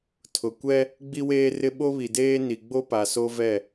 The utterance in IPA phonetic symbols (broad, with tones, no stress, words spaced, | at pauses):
tʰʊ˨kʷɛ˦ | ɡ͡bi˦weː˦rɪ˦ ɓo˦βi˨deː˦ ni˨ɡ͡bo˦pa˨so˦ vɛ˦˨